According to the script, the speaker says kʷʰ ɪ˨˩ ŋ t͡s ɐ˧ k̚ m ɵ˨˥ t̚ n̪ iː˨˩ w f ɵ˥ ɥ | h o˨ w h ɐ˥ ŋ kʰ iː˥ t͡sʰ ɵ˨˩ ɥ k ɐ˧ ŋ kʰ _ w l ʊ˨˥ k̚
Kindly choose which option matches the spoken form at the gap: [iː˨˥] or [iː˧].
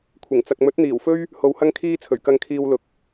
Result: iː˧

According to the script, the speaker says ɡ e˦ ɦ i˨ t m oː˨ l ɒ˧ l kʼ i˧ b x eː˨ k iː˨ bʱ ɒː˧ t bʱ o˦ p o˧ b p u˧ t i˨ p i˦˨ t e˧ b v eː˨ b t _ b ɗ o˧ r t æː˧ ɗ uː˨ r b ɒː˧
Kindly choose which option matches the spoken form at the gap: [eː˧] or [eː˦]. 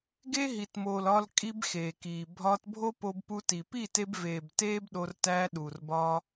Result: eː˦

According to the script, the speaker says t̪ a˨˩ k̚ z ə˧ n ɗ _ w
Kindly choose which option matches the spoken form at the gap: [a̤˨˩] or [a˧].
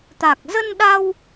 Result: a˧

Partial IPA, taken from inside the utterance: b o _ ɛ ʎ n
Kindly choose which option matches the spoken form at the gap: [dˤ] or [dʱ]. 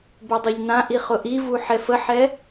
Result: dˤ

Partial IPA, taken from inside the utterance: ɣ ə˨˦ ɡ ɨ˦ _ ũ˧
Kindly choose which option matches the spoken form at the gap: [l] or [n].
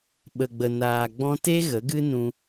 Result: n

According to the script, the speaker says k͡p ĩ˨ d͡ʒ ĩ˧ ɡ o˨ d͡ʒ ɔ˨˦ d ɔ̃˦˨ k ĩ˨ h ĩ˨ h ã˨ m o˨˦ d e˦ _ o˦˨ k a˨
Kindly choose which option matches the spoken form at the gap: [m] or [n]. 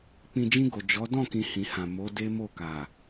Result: m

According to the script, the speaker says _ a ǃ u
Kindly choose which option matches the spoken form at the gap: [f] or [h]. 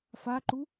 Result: f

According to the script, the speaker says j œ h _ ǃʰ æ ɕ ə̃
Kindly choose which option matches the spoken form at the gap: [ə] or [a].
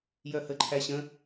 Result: ə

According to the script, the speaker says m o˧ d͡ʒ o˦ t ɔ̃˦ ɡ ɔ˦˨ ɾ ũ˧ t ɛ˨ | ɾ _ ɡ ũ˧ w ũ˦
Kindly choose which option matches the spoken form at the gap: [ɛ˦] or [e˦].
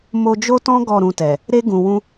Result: e˦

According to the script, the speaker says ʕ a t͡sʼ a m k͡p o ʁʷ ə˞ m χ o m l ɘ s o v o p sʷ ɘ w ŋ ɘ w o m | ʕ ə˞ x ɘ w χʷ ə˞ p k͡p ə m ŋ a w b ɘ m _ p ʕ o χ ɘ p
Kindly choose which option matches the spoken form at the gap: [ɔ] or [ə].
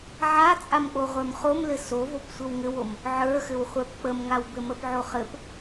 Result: ə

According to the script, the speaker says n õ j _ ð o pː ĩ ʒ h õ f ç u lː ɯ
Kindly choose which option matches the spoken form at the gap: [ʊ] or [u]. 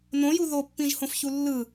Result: u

